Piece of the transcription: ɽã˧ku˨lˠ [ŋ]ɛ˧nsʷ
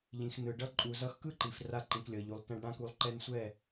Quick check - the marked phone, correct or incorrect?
incorrect